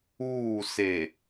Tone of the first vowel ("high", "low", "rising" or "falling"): falling